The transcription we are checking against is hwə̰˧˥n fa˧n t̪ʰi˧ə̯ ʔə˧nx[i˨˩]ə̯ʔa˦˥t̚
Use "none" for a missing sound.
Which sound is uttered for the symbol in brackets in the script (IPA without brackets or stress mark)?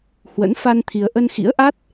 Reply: ḭ˧˥